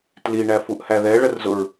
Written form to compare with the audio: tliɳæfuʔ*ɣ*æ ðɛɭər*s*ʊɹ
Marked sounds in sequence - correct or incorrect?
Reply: incorrect: h, incorrect: z

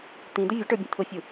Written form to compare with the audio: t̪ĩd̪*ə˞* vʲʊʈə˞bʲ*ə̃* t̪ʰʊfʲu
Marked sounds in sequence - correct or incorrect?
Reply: incorrect: ə, correct

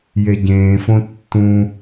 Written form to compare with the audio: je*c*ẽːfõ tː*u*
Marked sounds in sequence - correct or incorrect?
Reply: incorrect: ɟ, incorrect: ũ

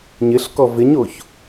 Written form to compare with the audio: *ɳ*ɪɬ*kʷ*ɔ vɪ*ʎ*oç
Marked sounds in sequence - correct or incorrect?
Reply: incorrect: ɲ, incorrect: k, incorrect: ɲ

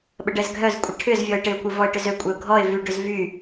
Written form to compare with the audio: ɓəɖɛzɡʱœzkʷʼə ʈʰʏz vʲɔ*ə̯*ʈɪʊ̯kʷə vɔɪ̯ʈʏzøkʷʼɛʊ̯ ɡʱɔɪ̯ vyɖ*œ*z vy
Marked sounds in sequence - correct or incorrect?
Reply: incorrect: ɪ̯, incorrect: ø

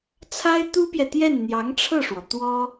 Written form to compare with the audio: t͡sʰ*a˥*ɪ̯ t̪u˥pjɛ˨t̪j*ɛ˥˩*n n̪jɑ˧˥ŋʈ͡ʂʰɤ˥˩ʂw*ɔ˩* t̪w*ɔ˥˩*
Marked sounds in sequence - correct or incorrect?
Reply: correct, correct, correct, incorrect: ɔ˥

